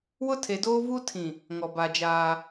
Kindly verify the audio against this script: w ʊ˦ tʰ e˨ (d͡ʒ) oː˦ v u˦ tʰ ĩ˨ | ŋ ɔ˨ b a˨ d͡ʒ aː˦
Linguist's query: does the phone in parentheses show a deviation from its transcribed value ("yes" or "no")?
yes